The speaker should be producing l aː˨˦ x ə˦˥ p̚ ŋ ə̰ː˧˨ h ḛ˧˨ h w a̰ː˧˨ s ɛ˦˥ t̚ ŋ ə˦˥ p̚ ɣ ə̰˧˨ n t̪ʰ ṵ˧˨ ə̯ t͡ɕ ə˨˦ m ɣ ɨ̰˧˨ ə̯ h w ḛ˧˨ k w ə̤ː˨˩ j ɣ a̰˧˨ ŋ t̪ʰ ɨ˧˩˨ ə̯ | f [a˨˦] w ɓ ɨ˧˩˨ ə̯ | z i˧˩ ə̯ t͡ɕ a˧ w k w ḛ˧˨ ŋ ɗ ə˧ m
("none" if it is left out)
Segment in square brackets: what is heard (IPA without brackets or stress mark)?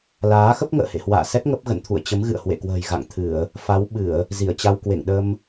a˨˦